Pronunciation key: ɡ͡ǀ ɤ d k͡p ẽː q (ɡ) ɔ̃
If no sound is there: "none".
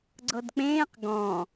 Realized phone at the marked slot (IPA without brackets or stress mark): ɡ